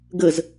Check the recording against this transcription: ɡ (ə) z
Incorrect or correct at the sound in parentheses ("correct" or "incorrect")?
correct